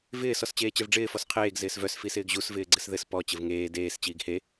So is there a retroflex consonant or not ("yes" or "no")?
yes